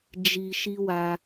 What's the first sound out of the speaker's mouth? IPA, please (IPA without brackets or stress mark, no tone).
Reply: d͡ʒ